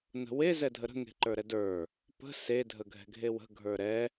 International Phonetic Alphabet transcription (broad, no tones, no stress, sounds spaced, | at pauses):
n ə̤ w e z ɛ dʱ ə ɾ ə̤ ŋ e̤ ǃ ə˞ ɾ ɛ d ə˞ | p ə̤ s e dʱ ə ɡʱ ɛ̤ ɡʱ e w ə̤ ɡʱ ə˞ ɾ ɛ